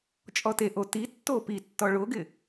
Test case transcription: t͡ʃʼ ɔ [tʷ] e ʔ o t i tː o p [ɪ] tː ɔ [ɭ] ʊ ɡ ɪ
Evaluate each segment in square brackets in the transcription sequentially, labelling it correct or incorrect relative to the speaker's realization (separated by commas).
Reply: incorrect, incorrect, correct